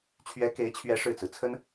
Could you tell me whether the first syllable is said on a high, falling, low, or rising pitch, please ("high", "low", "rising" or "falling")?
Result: rising